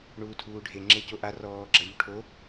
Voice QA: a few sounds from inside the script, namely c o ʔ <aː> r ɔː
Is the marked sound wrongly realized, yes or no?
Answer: yes